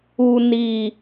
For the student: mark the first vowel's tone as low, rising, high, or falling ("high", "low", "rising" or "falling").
low